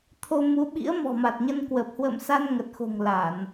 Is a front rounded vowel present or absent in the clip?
absent